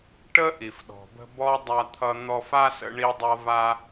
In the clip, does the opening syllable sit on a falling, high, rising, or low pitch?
high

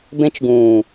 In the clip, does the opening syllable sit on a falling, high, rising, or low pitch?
high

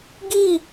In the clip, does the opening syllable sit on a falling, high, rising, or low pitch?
falling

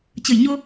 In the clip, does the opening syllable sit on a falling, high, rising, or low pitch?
low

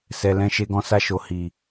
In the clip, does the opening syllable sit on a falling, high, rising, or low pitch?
low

